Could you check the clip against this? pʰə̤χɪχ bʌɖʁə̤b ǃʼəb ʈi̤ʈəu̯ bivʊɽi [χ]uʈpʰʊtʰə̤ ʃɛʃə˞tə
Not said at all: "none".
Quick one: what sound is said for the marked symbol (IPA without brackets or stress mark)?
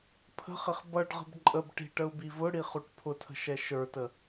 χ